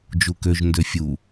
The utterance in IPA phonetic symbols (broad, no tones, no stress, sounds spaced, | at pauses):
d͡ʒ u k ø ʒ n d ø fʲ u